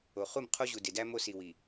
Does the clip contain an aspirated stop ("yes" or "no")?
yes